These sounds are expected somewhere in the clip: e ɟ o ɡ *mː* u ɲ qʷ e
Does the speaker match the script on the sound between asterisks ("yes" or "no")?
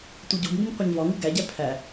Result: no